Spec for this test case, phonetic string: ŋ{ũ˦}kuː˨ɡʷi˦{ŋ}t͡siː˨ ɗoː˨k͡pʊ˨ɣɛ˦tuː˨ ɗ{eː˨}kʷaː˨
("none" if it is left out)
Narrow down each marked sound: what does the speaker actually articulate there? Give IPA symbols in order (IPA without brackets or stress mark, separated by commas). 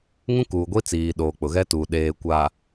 ũ˦, none, eː˨